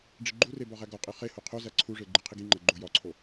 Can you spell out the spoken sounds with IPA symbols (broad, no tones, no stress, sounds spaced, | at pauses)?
ɖ͡ʐ i ɡ͡ǃ u r e b ɒ ʁ æ ɡ ɒ qʼ i χ e h o qʰ o z æ ǀʰ u ʐ e ɡ͡ǃ i qʰ i ɡ i ŋ͡ǃ æ ɡ͡ǃ o j ɒ ǀʰ o